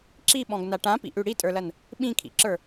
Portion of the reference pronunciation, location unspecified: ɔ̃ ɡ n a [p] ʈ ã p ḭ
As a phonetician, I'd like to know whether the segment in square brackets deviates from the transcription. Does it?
yes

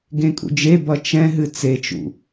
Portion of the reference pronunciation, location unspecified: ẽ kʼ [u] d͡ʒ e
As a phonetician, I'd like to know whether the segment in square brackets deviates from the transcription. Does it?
yes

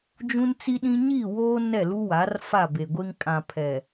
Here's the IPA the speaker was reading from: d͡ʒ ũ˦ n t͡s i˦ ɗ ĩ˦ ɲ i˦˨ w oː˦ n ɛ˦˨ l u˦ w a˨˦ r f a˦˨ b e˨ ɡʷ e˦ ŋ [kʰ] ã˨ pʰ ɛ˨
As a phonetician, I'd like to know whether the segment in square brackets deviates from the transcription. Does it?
yes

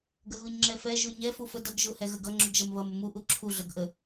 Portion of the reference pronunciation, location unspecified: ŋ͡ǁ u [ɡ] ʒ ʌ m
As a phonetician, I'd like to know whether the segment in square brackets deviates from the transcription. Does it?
no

